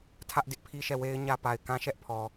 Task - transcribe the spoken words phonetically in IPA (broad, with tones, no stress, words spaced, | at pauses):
tʰä˦ʔdɪ˦ʔpʰi˦ʃɛ˦˨ we˦ɪ̯ɲä˦pa˨ɪ̯kã˦ ʃɛ˦ʔ pʰɔ˨